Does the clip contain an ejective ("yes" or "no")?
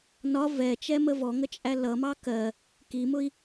yes